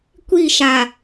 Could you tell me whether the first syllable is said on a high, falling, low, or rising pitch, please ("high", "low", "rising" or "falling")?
falling